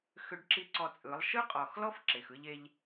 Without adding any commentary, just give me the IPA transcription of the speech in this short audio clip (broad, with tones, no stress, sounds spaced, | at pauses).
x ʏ˦ ɖ ǁ i˦ ǀ ɔ˧ t͡sʼ ɯ˨˦ lˠ ʃ ɯ˦ qʼ ɔ˨ x l ɔ˦ f ǁ e˨ x ɯ˦ ʎ e˦ ʎ